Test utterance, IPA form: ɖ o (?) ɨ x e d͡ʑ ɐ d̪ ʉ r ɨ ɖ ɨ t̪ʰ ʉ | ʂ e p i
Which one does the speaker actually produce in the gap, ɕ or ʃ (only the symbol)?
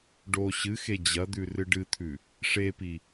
ɕ